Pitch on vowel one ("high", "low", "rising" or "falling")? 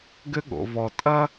high